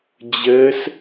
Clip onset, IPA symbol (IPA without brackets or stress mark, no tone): d͡ʑ